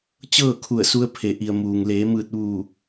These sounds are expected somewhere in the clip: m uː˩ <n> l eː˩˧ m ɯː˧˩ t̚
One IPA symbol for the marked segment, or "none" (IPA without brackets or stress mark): ŋ